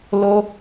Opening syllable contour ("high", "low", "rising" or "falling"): high